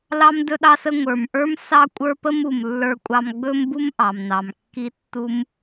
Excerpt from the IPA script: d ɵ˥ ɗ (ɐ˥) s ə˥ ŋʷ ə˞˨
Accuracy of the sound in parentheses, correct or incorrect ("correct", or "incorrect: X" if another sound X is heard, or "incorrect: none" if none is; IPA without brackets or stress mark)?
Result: incorrect: ɑ˥